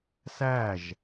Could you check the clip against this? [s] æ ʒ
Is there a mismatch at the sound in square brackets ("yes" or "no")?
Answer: no